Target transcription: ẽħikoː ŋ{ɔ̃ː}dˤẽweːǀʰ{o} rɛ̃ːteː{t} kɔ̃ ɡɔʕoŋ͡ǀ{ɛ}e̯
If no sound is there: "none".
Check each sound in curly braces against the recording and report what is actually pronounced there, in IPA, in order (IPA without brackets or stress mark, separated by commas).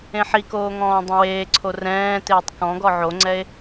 ɔ̃ː, o, tˤ, ɛ